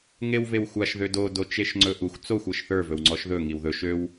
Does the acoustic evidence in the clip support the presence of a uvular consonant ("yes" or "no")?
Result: no